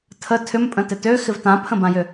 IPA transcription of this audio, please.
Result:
tʰ ə tʰ ʏ m pʼ ə̃ t ɪ t ø x ɪ v t ã pʰ ə̃ b ã j ʏ

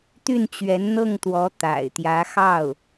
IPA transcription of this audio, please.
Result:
t̪ y˥˩ n t͡ɕ ɥ ɛ˧˥ n n̪ ɤ˥˩ ŋ t̪ w ɔ˧˥ t̪ a̰˨˩ ɪ̯ t̪ j ä˧˥ x ɑ˥˩ ʊ̯

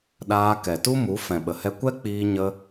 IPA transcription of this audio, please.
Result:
ɗ aː˧ k ɛ˨ t u˦ m u˨˦ f ɛ̃˨ ɓ ə˨ h ɛ˧ kʷ ɛ˦ k͡p iː˧ ɲ ə˧

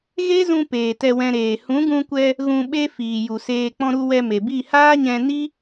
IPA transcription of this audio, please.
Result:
ɣ e˦ z ũ˧ p eː˨ t ɛ˧ w ɛ̃˧ ɾ eː˨ h ũ˨˦ ɡ ũ˧ kʷ ɛ˧ | ɣ ũ˧ ɓ e˦ f iː˨ j u˨ s eː˧ k͡p ɔ̃˧ ɾ u˧ w ɛ˧ m e˨ b i˦˨ h aː˦ ɲ ɛ̃˧ n i˦

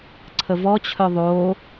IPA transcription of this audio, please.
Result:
ǀʰ ə v ɔ t͡ɕʰ œ ðˤ o

